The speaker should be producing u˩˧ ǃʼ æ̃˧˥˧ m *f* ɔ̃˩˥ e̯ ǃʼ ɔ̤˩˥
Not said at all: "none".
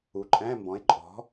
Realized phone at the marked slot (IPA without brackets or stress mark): b